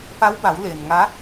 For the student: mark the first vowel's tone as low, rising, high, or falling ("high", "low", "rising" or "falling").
rising